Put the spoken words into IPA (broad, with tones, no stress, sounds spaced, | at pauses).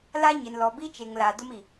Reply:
l a˦ ɲ ɪ˨ n l ɔ˨ b i˦ t͡ʃ e˨ ŋ l a˨ d ʊ˦ m i˨